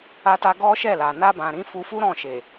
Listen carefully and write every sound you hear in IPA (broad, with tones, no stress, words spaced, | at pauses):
a˧ta˧ ɡɔ˦ʃɛ˦˨la˨ na˧bã˨ ɾĩ˨˦fu˧ fu˦ɾɔ̃˦˨ʃe˨